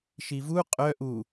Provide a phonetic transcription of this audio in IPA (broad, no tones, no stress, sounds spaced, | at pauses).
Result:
ʃ i v u qʼ œ ʔ u